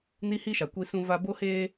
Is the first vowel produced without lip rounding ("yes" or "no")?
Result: yes